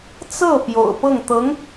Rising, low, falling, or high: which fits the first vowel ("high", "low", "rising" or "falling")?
falling